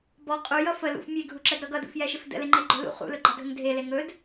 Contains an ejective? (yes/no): yes